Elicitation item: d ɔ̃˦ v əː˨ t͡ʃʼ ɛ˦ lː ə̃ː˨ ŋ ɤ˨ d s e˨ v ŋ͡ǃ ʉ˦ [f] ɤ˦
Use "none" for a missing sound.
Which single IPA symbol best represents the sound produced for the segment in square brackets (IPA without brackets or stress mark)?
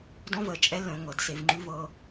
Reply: v